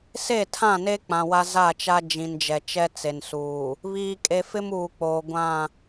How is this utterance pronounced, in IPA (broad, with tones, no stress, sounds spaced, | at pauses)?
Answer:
s e˦˨ tʰ ã˦˨ n e˦ k͡p ã˨ w a˦ z a˦˨ t͡ʃ a˦ d͡ʒ ĩ˨ n d͡ʒ ɛ˨ t͡ʃ ɛ˦ t͡s e˨ n s uː˨ | β iː˨ kʼ e˨ f ɪ˦ m uː˨ k͡p oː˨ ɡʷ ã˦˨